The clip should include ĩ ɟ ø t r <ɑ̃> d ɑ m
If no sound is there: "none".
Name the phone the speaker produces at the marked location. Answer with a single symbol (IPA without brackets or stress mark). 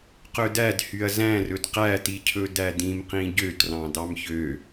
ɑ̃